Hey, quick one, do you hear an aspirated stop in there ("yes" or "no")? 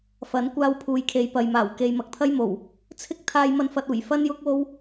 yes